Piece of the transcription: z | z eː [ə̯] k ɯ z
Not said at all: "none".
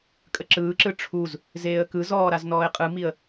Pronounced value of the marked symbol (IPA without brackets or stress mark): ə̯